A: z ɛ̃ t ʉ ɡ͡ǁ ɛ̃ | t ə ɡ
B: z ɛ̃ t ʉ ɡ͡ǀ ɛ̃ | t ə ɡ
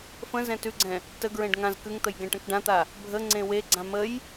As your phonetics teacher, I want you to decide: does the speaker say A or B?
B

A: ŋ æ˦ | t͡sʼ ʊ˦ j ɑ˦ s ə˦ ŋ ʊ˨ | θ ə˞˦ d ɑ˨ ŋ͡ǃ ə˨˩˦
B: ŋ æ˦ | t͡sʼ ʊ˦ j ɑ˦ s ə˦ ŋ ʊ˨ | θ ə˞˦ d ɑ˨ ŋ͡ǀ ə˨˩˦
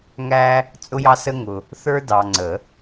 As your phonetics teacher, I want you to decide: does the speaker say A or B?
B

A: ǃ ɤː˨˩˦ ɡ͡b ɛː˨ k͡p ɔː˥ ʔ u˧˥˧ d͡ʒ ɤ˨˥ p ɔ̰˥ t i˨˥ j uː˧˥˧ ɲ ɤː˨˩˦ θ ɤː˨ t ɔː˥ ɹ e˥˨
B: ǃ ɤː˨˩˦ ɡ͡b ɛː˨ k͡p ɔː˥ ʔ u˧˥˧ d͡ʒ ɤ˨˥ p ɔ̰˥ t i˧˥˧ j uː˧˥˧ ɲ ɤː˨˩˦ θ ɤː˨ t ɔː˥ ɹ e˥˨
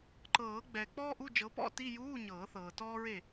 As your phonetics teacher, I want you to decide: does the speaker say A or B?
B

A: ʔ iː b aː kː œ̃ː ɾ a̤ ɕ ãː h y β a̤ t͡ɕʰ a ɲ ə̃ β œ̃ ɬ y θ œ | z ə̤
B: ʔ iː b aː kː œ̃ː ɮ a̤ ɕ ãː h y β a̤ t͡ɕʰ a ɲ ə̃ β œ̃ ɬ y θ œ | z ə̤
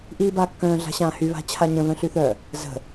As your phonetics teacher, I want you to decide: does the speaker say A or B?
B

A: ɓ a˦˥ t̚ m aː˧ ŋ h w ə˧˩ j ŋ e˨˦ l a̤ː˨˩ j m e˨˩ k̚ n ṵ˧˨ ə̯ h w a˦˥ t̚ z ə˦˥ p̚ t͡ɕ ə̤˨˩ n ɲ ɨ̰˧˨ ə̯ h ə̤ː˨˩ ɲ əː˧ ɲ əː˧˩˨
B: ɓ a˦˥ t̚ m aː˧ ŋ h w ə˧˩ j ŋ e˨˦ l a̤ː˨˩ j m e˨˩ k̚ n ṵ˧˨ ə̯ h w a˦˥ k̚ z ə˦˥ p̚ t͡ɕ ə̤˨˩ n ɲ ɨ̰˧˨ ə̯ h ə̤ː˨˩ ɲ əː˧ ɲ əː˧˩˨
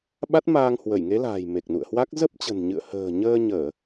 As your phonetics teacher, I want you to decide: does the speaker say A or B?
B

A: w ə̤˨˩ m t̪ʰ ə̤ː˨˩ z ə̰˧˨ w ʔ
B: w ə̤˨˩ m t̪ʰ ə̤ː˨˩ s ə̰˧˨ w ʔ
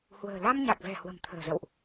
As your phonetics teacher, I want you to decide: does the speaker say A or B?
A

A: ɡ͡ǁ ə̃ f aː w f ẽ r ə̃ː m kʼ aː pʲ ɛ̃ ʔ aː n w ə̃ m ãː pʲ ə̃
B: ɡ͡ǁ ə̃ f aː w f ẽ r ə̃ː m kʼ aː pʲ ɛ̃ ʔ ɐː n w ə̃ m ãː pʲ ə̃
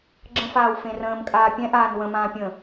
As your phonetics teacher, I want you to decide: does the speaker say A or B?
A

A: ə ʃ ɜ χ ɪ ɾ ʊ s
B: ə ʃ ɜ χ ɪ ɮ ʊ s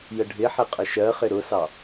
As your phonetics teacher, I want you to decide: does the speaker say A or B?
A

